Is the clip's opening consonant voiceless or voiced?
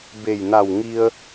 voiced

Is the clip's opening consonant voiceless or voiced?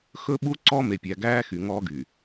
voiceless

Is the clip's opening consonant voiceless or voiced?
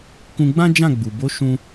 voiceless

